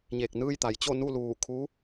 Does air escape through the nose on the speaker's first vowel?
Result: no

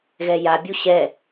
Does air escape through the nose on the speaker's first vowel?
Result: no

